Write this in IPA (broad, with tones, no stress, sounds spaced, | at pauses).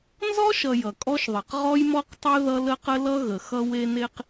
n z ɔ˦ ʃ ʌ˨ j ʌ˨ kʼ ɔ˦ ʃ ðˤ e˨ q ʁ ɔ˦ j m ɔ˦ q tˤ e˦ ð ʌ˦ l ə˦ q ə˦ l ʌ˦ ɣ ə˨ x ʌ˦ w e˦ n e˦ q